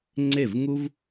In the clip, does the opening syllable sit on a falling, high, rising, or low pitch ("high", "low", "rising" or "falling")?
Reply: falling